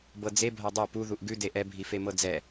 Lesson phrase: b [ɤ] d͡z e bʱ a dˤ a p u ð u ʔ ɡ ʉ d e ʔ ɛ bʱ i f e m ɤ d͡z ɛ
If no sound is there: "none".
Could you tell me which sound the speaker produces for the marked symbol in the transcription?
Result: ɤ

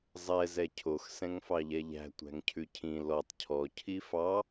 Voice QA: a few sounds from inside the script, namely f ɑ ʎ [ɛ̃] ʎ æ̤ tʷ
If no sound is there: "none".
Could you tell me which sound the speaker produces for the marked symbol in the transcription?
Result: ɛ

